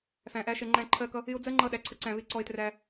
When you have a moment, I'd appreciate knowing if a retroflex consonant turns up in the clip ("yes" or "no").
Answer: no